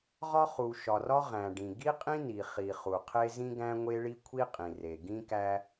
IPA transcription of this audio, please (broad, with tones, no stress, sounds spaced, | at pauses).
ʁ ɒ˥ χ u˩ ʃ ɒ˩ r ɒ˥ ʁ æ̃˩ ɖ ĩ˩ ɡ i˥ qʼ ĩ˥ n i˩ χ i˩ χ u˩ qʰ e˥ z ĩ˥ ɡ æ̃˥ ŋʷ e˥ ɭ i˥ kʷʰ i˥ qʼ ĩ˩ r e˩ ɡ ĩ˥ k æ˥